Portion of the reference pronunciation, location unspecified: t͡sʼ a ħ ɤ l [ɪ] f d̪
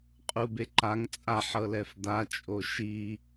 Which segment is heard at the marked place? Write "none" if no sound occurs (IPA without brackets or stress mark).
ɛ